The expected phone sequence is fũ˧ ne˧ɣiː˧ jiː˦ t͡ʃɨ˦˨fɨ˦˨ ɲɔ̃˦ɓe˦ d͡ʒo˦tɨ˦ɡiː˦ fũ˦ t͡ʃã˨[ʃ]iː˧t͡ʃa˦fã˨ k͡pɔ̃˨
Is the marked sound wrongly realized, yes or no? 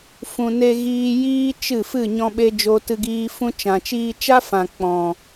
yes